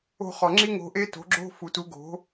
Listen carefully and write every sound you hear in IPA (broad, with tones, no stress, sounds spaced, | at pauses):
o̤˧ χ ɒ˩ ŋ͡ǁ i˥ ŋ o̤˧ ʔ e˥ t o̤˩˥ ɡ͡ǁ o̤˥ f u˩ t u˩˥ ɡ o̤˩˥